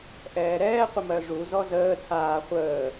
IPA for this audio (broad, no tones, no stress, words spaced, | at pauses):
ʔɛːɾɛː qʷəmɜʐu zɔzəː tʰaː χʷəː